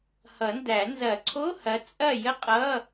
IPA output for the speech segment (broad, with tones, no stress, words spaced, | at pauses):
hʌ˨˩˦ndæ˨˩˦ nzɐ˨˩˦ǀʰo˧˥˧hɐ˨˦ t͡sʼɐ˥˨jə˥qʼʌ˧˥˧